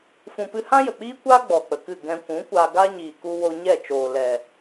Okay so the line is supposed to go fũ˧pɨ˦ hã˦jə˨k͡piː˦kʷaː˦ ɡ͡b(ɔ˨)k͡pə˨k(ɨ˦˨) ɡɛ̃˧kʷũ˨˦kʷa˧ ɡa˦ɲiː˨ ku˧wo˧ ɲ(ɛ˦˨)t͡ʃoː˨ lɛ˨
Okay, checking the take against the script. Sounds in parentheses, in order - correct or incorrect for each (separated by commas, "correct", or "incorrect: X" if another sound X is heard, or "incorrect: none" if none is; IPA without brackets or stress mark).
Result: correct, correct, correct